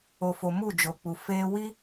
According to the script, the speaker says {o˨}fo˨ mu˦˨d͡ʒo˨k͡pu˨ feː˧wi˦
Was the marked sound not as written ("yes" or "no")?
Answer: no